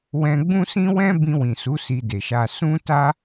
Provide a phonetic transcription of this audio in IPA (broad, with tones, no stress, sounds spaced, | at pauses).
w ɛ̃˧ ɡ͡b ũ˦ s ĩ˦ w ɛ̃˦ b ĩ˧ w ĩ˨ s u˨˦ s i˧ d e˨ ʃ a˧ s ũ˦ t a˦